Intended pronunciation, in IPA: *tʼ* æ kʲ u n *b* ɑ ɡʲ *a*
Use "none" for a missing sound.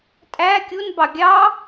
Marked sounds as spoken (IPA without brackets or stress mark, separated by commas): tʼ, b, ɑ